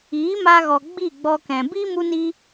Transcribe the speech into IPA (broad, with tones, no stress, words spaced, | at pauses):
iː˨˦ma˧ɣɔ˨ ɡ͡bi˦˨ɡ͡bɔ˧kɛ̃˨ bi˦ mu˦ni˦